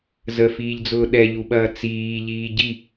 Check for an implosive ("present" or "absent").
present